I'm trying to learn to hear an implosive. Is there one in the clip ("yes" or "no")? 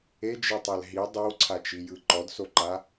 no